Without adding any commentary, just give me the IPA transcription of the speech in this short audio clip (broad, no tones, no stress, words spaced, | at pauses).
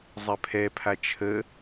zˤɛpʰɛpʰa t͡ʃʰə